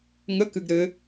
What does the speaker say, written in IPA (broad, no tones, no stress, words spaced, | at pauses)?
ŋə kɨɡɾɘ